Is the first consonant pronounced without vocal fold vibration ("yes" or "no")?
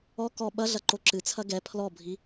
yes